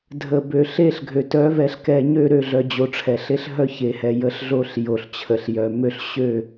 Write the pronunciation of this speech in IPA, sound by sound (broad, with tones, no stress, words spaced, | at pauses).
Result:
dʱə˨ bø˨ɬe˦ɬɡʱø˨ tœ˨˦vɛ˨ɬkɛ˨ ɲø˦˨ɾø˦˨ ɮœ˨d͡ʑo˨ ʈ͡ʂʰɛ˨ɬe˦ɬ ɦœ˦ çe˨hɛ˨ jə˦ɬɮo˦ɬ jo˨ɬt͡ɕʰə˨ɬjœ˨mø˦ɬ ɕø˦˨